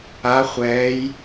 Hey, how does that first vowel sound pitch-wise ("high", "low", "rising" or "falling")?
rising